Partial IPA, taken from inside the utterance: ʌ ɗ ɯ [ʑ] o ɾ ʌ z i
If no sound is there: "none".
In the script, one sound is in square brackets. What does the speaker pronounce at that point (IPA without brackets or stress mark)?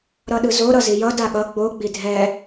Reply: z